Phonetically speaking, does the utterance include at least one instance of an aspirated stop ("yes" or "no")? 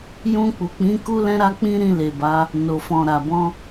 no